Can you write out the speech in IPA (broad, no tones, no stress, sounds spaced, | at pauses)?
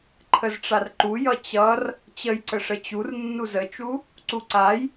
ǃʰ ə z ʈ͡ʂ a r ǃ u j ʌ t͡ɕ ʌ r | t͡ɕ ə j ǀ ə ʂ ə t͡ɕ u r nː u z ə t͡ʃ u | ǀ u ǀ a j